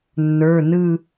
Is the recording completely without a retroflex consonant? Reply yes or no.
yes